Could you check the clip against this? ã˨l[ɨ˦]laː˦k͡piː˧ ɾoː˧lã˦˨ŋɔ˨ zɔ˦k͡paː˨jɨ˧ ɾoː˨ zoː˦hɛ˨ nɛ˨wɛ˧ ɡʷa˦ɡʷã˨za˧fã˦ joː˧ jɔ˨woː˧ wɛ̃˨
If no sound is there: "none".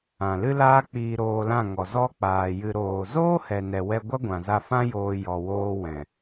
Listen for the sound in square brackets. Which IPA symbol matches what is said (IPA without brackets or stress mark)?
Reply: ɨ˦